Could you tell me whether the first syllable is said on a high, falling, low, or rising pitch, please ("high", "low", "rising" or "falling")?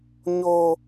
high